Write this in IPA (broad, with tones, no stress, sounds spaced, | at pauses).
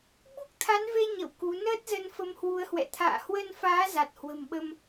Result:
ɓ u˦˥ k̚ t̪ʰ a˨˦ n v e˧ ɲ ə̰˧˨ w k u˨˦ n əː˦˥ t̚ z ə˨˦ n f ə˨˦ m h w u˨˦ ə̯ h w ɛ̰˧˨ t̪ʰ a̰ː˧˨ h w ə˧ n f aː˨˦ z a˨˩ t̚ h w ə̤˨˩ m ɓ ə˧ m